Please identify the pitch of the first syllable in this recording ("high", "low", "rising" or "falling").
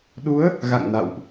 rising